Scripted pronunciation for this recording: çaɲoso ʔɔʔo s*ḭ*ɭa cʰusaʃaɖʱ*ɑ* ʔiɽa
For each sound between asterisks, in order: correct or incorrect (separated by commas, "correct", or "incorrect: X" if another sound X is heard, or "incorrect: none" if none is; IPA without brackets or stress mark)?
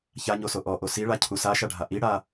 incorrect: i, incorrect: a